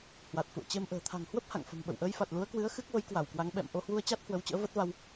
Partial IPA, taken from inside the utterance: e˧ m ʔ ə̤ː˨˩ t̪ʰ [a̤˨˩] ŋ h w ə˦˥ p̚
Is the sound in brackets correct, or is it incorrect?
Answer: correct